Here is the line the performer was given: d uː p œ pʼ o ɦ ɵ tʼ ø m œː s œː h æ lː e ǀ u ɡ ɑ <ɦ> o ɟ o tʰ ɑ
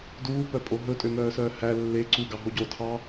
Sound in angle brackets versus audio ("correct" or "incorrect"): correct